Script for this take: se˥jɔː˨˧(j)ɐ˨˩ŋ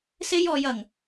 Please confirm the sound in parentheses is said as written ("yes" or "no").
yes